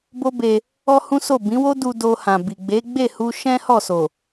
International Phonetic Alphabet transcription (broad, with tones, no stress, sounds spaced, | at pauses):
b o˦ b e˧ | ɔ˦ h ũ˦ s o˦˨ b ĩ˨˦ w o˦ d u˧ d o˧ h ã˨ b i˨ ɡ͡b e˨˦ ɡ͡b e˦˨ h u˧ ʃ ɛ̃˦ h ɔ˦˨ s o˨